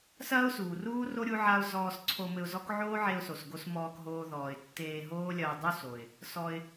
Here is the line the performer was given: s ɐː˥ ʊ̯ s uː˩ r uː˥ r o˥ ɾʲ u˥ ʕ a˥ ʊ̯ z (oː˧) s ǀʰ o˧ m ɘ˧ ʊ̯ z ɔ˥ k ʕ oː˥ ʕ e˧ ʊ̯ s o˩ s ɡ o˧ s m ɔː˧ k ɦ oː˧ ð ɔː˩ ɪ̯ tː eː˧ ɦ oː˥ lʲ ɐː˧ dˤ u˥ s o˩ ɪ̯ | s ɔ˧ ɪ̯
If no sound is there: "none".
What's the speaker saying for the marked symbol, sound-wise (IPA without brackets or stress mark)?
ɔː˧